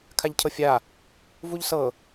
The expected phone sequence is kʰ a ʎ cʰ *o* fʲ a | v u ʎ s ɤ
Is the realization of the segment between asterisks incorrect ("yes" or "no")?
yes